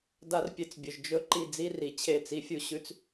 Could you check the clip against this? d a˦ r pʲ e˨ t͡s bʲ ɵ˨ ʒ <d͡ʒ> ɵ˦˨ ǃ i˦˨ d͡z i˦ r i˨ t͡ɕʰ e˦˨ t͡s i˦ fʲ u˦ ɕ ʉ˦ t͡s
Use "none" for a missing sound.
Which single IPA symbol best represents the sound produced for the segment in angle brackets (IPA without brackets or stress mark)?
d͡ʒ